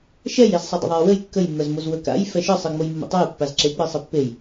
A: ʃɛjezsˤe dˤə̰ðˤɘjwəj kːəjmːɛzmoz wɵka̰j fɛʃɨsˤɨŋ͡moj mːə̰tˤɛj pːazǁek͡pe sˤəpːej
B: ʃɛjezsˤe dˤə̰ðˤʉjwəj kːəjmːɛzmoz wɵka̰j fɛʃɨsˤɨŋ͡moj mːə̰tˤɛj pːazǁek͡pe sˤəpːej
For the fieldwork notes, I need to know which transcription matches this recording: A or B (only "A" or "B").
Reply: A